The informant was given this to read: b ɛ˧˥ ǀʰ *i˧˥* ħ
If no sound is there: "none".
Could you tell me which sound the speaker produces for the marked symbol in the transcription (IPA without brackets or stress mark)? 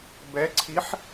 i˧˥